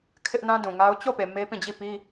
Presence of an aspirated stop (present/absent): present